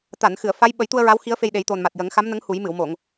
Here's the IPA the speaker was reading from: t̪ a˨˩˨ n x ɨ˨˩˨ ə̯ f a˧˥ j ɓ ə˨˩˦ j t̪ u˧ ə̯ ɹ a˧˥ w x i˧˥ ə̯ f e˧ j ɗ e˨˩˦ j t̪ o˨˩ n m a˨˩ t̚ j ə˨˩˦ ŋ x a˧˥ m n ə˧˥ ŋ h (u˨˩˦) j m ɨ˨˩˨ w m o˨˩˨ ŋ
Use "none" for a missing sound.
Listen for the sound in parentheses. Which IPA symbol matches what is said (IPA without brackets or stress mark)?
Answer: u˨˩˦